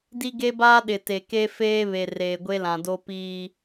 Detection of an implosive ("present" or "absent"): present